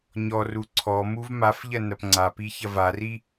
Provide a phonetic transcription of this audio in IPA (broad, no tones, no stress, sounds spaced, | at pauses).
ɲ ɔ r u ǀʰ ɔ m u v m a f ʎ ɐ n ɐ p ŋ͡ǀ a p i ç ɐ v a r i